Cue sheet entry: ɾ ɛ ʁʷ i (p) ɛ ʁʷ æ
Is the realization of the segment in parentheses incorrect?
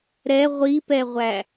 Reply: no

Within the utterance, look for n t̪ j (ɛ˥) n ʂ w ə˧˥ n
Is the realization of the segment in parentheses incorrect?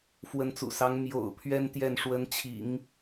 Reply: yes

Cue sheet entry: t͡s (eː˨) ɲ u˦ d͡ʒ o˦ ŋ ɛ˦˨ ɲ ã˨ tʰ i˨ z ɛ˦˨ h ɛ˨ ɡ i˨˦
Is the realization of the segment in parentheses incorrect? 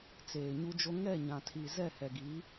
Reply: no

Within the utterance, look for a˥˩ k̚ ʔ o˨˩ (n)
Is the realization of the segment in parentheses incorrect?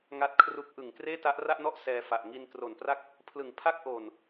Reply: no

